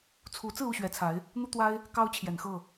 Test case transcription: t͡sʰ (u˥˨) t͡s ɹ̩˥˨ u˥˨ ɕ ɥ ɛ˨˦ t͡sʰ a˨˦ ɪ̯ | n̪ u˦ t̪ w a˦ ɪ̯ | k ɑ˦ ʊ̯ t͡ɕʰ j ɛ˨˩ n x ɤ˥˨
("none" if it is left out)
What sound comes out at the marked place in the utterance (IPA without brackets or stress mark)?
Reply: u˨˦